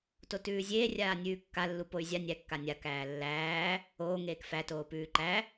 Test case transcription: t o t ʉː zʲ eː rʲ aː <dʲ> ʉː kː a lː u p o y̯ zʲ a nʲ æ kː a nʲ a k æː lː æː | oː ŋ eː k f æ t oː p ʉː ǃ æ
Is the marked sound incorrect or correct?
incorrect